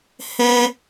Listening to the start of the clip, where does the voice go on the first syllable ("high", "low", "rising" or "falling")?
high